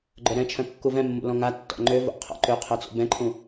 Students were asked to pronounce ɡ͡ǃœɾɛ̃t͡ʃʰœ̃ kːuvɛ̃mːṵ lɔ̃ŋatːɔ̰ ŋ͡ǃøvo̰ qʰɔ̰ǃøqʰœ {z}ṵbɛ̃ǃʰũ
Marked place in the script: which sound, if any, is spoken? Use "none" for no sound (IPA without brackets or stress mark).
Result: t͡s